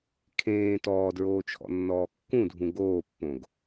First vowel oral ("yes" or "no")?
no